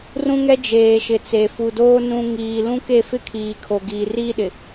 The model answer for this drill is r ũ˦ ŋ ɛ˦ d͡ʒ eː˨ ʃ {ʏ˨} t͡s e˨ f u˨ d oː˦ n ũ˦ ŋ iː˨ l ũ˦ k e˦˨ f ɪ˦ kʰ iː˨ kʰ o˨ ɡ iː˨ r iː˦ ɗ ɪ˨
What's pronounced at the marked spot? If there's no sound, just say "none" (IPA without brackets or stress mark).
ɪ˨